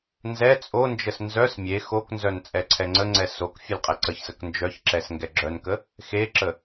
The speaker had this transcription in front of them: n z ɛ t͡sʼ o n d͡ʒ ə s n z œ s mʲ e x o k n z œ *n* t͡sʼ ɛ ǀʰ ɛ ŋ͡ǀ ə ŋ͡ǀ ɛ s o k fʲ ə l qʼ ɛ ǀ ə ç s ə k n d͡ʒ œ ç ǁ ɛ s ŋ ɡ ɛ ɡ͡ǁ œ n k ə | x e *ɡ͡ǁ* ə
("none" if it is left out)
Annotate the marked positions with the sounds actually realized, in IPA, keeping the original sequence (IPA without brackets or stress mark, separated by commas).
n, ǁ